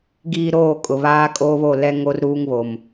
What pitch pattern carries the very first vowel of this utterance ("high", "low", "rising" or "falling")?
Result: low